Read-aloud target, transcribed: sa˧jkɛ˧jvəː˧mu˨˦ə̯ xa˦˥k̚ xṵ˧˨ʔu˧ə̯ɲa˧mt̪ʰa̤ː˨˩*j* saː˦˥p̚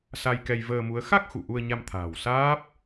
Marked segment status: incorrect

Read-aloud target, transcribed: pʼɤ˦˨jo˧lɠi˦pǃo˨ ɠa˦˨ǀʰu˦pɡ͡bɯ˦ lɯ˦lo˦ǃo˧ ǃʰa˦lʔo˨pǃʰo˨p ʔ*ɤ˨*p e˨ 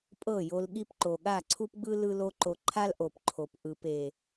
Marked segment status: incorrect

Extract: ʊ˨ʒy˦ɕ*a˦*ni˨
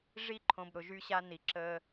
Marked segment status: correct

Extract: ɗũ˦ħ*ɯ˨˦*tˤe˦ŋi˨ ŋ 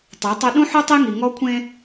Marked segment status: incorrect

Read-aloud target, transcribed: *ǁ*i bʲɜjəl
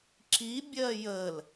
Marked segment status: correct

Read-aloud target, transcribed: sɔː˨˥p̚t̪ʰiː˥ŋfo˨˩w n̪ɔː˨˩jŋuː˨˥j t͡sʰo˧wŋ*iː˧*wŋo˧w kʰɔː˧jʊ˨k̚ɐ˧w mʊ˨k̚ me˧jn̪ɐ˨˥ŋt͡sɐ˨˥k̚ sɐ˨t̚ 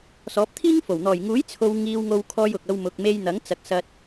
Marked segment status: correct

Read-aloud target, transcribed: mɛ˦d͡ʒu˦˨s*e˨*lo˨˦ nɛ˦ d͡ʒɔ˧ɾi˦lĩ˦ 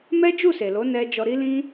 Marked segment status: correct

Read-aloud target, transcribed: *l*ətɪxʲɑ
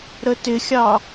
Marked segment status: incorrect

